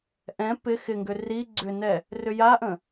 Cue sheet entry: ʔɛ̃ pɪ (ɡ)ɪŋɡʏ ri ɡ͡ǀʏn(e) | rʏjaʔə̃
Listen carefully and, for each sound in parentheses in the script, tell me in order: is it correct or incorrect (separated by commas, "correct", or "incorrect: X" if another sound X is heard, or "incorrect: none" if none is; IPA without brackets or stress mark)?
incorrect: x, incorrect: ɛ